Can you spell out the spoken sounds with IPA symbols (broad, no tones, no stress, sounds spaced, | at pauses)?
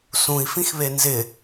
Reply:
s ũ i̯ f ĩ x β e n z ɪ